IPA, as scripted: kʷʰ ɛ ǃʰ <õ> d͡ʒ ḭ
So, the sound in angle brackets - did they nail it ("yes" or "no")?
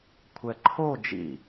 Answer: no